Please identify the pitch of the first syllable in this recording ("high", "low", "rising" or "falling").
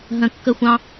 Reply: low